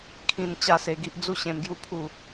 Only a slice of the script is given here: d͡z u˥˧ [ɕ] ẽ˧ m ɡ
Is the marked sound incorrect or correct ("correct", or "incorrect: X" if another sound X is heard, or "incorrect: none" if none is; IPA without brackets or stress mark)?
correct